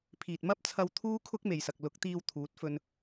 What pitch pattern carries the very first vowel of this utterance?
low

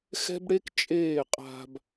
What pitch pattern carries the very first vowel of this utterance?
high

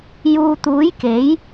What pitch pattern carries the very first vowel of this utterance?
low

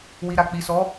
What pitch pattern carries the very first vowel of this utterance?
low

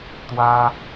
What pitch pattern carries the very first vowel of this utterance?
high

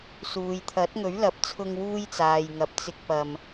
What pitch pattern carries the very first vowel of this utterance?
low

